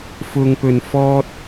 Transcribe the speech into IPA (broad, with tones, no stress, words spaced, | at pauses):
fʊ˧ŋpɵ˨n fɔː˧t̚